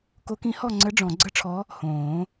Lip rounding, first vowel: rounded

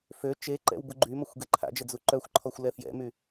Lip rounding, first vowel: rounded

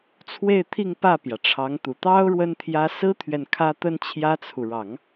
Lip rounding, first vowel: unrounded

